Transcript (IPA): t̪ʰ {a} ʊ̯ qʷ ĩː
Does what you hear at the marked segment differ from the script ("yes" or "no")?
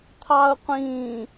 yes